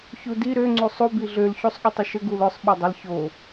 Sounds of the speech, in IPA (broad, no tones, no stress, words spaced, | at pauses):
çudi ɾø ŋ͡ǀusˤu biɮøl çusˤɠʊtˤʏʃə ɡulʊsˤ ɓodˤəl ço